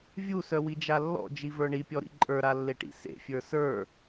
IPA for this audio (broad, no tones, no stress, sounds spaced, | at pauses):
vʲ u s œ w i d͡ʒ a lː ɔ̰ d͡ʒ i v ə˞ ɳ i pʲ ɔ ɾ ḭ ǃʼ ə˞ ɾ a lː e ʈ ḭ s ḛ fʲ ə˞ s ə˞